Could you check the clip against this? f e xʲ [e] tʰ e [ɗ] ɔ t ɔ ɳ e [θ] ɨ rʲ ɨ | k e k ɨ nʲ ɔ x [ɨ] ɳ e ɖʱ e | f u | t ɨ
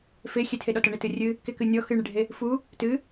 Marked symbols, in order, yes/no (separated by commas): yes, yes, no, yes